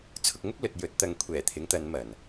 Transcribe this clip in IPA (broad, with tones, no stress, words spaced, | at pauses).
t͡sʰʊ˧k̚ŋʊ˥k̚ lɵ˧t̚ jɵ˨˥t̚t̪ɐ˧ŋ kʷʰɛː˨˩ t̪ʰɪ˨˥ŋt̪ɐ˨˧nmɐ˨˩n